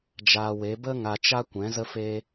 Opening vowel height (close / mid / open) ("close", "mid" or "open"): open